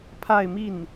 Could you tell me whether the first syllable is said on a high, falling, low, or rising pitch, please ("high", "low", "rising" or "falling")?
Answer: falling